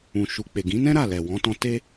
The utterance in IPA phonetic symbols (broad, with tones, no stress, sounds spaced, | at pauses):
ũ˨ ʃ u˨ k͡p e˨ ɡ ĩ˨˦ n ɛ̃˦ ɾ a˦˨ l ɛ˨ w ɔ̃˨˦ t ɔ̃˧ t e˧